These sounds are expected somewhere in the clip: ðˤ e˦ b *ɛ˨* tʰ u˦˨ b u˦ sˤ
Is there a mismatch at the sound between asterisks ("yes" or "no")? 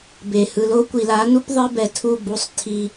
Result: no